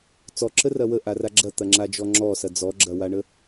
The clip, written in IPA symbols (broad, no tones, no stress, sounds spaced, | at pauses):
t͡s ɔ ǁ ə r ɐ w ə ʔ a r a ɡ͡ǁ ɐ t̪ ɐ ŋ͡ǁ a d͡ʒ ɔ ŋ͡ǁ ɔ s ɐ d͡z ɔ ɡ͡ǁ ɐ w a ɳ ə